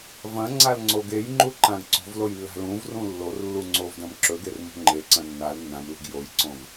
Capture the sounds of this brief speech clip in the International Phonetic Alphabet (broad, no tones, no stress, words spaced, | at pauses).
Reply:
vɐ̃ŋ͡ǀal ŋ͡ǀoɡejŋ͡ǃu ǃãɡǀo̤vloj lːa̤lũvrũ lːor lːuŋ͡ǀovdɐ̃m ǁɵɡer mṳŋ͡ǃeǀɐ̃ nːal nːãmlṳɡ jojǀõv